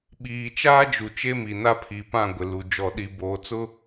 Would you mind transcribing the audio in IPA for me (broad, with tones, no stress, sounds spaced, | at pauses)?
ɓ iː˨ t͡ʃ aː˦ d͡ʒ u˨ t͡ʃ e˦ m i˨ n a˦ pʰ i˨ p ã˦˨ ɡʷ ɪ˨ l u˨ d͡ʒ ɔ˨ ɗ i˨ b oː˨˦ t͡s ʊ˦